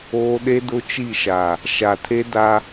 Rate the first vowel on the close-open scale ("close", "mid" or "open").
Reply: mid